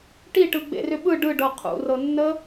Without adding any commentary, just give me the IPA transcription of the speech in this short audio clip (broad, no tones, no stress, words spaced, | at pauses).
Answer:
ʈiʈɯ ɡ͡bḛrʏɓɯ ɖɯɖɤ qʰṵrɤnːə